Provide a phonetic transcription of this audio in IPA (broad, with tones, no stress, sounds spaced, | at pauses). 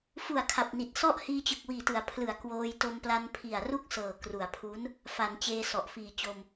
f u˨˩ a̯ kʰ a˨˩ p̚ n i˨˩ t̚ s ɔ˥˩ ʔ h iː˧ t͡ɕ ɯ˨˩ k̚ w iː˨˩ t ɯ˩˦ a̯ pʰ l ɯ˩˦ a̯ k w oː˧ j t o˧ m p l a˧ n pʰ i˨˩ a̯ r u˥˩ k̚ s ɤː˨˩ k r u˩˦ a̯ pʰ u˦˥ n | f a˩˦ n t͡ɕ eː˧ s ɔ˨˩ ʔ f iː˨˩ t͡ɕ o˧ m